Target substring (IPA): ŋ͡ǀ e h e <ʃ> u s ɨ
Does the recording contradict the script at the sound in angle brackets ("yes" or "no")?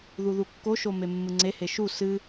no